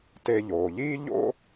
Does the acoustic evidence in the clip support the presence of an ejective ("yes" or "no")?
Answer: no